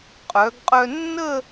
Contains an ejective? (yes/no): yes